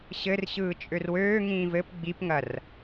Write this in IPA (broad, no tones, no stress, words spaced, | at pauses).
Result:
ɕɘrɕɯː t͡ʃʼørwøː ŋĩːvɘp ɡ͡bipŋɐr